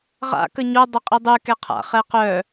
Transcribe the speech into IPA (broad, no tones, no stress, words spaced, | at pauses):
ʁa̰ kəɲo dˤəqʼidˤy kɛqʰa̰ χɛqœ